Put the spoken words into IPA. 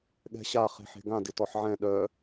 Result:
ɠ ɛ̤ ɕ a χ e̤ ħ e̤ ɡ ã d ɪ t ɔ ħ ʕ ɛ̃ ɗ œ

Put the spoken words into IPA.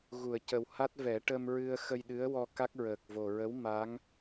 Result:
ɣ u˨˩˨ ə̯ c ə˨˩ w h a˦˥ t̚ v ɛ˨˩˦ ʈ ə˧ m ɹ ɨ˧ ə̯ x ə˧ j ɗ ɨ˧˥ ə̯ w ɔ˧ k a˦˥ k̚ ɹ əː˨˩ k̚ v o˨˩ ɹ ə˧˥ w m a˧˥ ŋ

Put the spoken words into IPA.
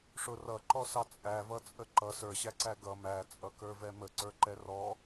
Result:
ʂ ʊ r ʌ ǃ ɔ s ɑ t͡sʼ æ v ʌ t͡sʼ ə ǃ ʌ s ə˞ ɕ æ ǀ æ ɡ ʌ m æ t͡sʼ ʌ k ə˞ v ɛ m ə ǀ ə˞ ǃ ɛ r ɔ

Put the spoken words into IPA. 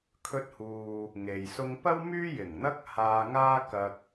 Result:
kʰ ɵ˧ t̚ h uː˨ | ŋ e˨ j s ʊ˧ ŋ p ɐ˥ w m yː˥ j ɪ˨˩ ŋ n̪ ɐ˥ k̚ h aː˧ ŋ aː˥ k ɐ˧ k̚

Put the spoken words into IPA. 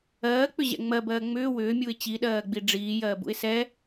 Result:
ɜː k͡p ʏ ʑ ɛ̰ ŋ͡m ɜ b ɜː ŋ͡m ʏː w ʏː mʲ u ɪ̯ t͡ɕ i ɗ ɜː ɡ͡b i ɖ͡ʐ iː j ɜː b ṵ ɪ̯ s ɛ

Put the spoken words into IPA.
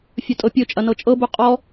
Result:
fʲ ɵ tʼ ɤ pʲ ɵ t͡ʃʼ ɐ n ɤ t͡ʃʼ ɤ b u qʼ ɔ

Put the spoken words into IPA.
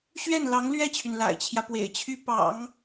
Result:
ɕ ɥ ɛ˥˩ n l ɑ˧˥ ŋ l ɥ ɛ˥˩ t͡ɕʰ y˩ n l a̰˨˩ ɪ̯ t͡ɕʰ j ä˦ p w ḛ˨˩ ɪ̯ t͡ɕʰ y˥ p ɑ̰˨˩˦ ŋ

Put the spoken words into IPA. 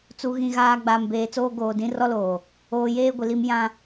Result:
t͡s u˨ ɣ ĩ˨ ɣ aː˨ ɡ͡b aː˨ m b eː˨ t͡s oː˦ ɡ oː˨ d ĩ˦ r ɔ˦ l oː˨ | oː˨ j eː˦ ɡʷ ɪ˨ l i˦ m j ã˦

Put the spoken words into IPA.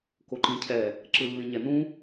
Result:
k o ǃ ĩ cʰ ɛ | ǁ ɯ lː ĩ ɲ ɛ n ũ

